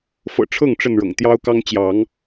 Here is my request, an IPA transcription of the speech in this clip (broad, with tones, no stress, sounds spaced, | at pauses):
f ɤ̰˨˩ ʈ͡ʂʰ ɤ˥˨ ŋ ʈ͡ʂ ə˥˨ n ɻ ɤ̰˨˩ ŋ t̪ j ɑ˦ ʊ̯ k ɑ˦ ŋ t͡ɕ j ɑ˨˦ ŋ